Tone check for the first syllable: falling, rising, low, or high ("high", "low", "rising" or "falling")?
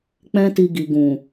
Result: high